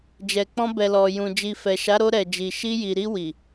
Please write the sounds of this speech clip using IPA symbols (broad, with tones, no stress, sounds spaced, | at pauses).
d͡ʒ ɛ˨ k͡p ɔ̃˧ b ɛ˨ l ɔ˨ j ũ˨ d͡ʒ i˨ f ɛ˨ ʃ a˨˦ ɾ o˧ ɾ ɛ˨ d͡ʒ i˨ ʃ i˧ j i˨ ɾ i˧ w i˨